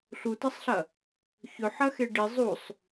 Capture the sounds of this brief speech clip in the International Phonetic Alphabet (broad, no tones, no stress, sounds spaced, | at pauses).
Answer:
ɬ u t ɐ sˤ ɬ ɐ | ç ɵ ħ ɐ x e ɖ i zˤ u sˤ